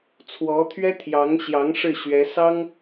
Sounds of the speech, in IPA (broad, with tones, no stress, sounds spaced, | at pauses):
t͡sʰ w ɔ˧˥ t̪ʰ ɥ ɛ˥ t̪ʰ j ɑ˧˥ ŋ ɕ j ɑ˧˥ ŋ ʂ ɻ̩˥˩ ɕ ɥ ɛ˧˥ s ɑ˥ ŋ